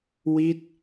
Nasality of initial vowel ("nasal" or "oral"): oral